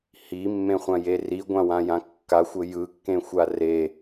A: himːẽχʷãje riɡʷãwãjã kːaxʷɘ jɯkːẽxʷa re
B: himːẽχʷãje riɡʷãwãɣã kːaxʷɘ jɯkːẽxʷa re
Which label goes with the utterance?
A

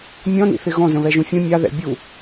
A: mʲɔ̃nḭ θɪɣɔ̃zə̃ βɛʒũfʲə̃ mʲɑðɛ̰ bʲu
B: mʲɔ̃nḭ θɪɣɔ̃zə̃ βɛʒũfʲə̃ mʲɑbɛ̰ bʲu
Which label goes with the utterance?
A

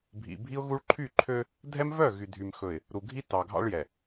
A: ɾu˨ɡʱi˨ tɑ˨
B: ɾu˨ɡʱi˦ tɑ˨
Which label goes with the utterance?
B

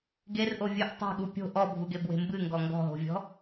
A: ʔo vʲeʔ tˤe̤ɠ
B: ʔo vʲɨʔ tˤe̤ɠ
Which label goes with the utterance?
B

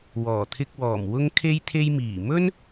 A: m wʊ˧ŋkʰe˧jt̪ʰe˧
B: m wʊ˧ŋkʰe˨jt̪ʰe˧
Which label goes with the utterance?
A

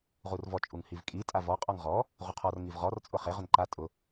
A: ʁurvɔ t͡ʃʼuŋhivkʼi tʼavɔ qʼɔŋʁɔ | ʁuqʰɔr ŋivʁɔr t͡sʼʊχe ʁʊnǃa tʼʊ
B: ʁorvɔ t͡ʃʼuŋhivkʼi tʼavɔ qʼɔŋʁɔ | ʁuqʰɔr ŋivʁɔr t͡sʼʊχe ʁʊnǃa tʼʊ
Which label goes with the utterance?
A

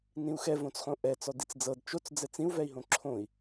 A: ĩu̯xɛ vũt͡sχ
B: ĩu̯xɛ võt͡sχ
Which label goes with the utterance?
B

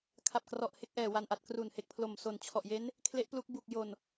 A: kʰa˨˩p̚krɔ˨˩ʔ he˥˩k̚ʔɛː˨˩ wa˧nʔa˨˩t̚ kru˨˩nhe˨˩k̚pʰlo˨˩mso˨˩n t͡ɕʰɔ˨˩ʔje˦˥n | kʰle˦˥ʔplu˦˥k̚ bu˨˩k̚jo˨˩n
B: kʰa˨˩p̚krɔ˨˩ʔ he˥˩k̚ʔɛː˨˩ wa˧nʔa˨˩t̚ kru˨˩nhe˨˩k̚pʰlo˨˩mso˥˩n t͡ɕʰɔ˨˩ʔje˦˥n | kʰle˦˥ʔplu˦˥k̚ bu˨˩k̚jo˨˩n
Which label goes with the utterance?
A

